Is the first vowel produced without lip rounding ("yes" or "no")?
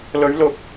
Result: no